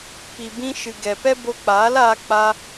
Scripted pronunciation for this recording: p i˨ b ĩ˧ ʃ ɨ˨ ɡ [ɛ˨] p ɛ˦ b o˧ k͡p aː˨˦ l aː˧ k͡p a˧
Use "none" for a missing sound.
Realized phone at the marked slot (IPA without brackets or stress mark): ɛ˨